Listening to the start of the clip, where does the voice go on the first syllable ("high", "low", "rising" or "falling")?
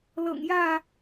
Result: low